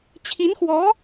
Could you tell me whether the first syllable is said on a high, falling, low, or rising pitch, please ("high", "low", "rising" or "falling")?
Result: rising